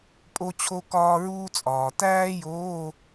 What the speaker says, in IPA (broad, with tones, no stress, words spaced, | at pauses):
pʼo˥t͡ɕʰo˥ kɒː˥ɹuː˥t͡sʼɒː˨ tæː˥joː˧˥˧